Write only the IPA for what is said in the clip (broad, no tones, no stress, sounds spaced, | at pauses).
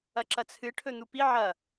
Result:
ɐ ǁ ɐ t͡sʰ ɨ ʈʰ ɵ n̪ u p i ʕ ɐ